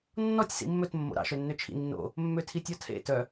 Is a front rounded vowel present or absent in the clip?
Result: present